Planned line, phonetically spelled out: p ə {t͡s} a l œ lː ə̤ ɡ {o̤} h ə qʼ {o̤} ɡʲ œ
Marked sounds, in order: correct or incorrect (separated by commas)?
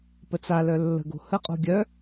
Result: correct, correct, correct